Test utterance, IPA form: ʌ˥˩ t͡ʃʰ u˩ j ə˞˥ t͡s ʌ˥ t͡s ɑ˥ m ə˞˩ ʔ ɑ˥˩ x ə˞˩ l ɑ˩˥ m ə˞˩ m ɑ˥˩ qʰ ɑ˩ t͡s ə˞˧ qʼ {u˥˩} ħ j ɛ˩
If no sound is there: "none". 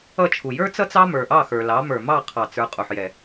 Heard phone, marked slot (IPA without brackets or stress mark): u˩